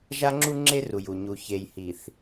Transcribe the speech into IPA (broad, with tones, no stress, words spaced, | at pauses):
ʒa˦ŋ͡ǁu˦ŋ͡ǁe˦ru˨j u˨ɲu˨ çe˨jhi˨θ